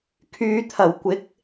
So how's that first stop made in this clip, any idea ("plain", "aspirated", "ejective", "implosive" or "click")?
aspirated